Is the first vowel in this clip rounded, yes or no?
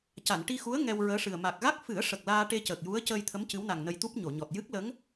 no